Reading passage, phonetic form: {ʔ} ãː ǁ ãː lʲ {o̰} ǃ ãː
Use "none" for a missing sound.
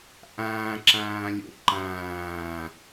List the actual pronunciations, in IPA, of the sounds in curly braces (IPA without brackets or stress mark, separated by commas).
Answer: ʔ, o̰